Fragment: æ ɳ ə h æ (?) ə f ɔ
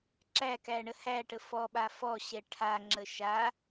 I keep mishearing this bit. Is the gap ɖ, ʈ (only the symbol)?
ʈ